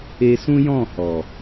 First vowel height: mid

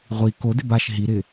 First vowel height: high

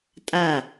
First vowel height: low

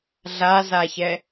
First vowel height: low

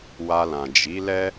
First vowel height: low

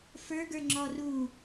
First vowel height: mid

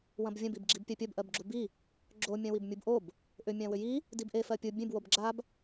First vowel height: low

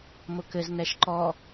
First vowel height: high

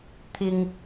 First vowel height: high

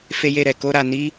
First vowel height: mid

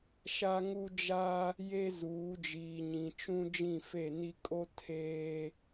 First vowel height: low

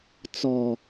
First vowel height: mid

